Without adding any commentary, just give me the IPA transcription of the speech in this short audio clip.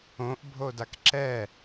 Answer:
õʔbʱodak ǁɛ

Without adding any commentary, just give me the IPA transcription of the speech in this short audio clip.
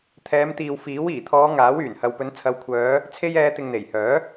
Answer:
t̪ʰɛː˨˧mt̪iː˨wfiː˨˥w iː˨˩t̪ʰɔː˨˧ ŋaː˨˥wyː˨˩nhɐ˨wpɵ˨˧n t͡sʰɐ˨˧wkʷʰœː˨˧ | t͡sʰe˥jɛː˧ t̪ɪ˨ŋn̪e˨˩jhœː˨˥

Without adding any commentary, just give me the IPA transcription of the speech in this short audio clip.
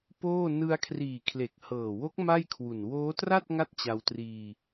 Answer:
poː˥˩ nɯ˧a̯kʰriː˨˩kʰle˨˩k̚ hɤː˨˩wo˦˥k̚ ma˥˩jkʰwu˨˩n woː˦˥tra˥˩t̚ ŋa˥˩t̚t͡ɕa˧wtriː˧

